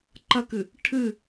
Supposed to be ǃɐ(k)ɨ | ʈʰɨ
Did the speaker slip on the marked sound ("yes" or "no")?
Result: no